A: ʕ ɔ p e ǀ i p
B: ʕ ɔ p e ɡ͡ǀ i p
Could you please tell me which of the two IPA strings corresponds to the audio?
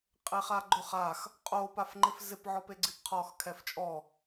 B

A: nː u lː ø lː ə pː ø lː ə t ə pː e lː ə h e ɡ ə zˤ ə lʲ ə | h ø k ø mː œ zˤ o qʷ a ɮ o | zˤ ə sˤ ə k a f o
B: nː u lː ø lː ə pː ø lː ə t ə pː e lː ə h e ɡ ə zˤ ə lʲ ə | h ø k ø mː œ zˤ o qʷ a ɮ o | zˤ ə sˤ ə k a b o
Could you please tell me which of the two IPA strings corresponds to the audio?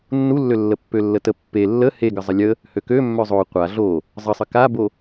B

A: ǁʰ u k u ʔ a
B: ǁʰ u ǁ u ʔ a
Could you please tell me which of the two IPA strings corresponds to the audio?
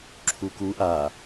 A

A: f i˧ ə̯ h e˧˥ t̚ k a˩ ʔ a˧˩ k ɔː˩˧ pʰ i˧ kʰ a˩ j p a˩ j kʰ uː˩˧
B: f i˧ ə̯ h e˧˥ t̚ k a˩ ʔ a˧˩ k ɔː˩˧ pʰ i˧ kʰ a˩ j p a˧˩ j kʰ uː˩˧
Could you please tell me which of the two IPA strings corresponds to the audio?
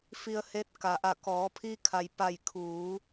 B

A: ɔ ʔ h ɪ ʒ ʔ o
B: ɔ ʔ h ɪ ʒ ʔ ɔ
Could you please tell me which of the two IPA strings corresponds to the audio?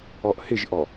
B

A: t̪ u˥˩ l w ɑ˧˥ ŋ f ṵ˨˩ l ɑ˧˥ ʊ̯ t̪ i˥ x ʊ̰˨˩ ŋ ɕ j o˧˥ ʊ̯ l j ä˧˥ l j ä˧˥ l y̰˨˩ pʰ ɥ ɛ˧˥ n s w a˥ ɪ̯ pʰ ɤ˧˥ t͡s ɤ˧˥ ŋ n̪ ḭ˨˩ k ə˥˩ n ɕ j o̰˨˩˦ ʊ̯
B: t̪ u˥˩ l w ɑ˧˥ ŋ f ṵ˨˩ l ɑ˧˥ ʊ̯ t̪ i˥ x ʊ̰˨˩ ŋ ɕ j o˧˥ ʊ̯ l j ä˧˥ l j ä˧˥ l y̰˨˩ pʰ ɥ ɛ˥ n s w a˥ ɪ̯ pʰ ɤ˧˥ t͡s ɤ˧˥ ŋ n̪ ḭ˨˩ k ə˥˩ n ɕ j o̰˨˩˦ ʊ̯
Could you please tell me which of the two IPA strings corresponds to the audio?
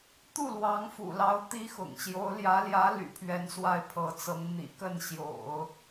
A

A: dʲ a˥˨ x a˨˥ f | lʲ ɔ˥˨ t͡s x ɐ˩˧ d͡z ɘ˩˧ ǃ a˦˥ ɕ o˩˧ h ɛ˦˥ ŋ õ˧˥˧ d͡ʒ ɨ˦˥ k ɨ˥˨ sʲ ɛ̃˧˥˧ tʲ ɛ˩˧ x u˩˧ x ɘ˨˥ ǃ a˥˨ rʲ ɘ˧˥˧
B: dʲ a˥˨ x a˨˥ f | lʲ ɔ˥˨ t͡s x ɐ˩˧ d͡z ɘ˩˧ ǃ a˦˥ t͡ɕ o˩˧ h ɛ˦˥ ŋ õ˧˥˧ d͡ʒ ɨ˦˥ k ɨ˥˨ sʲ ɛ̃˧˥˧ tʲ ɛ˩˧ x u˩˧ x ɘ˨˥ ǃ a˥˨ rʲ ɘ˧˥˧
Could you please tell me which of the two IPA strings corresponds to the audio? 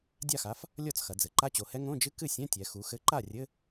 B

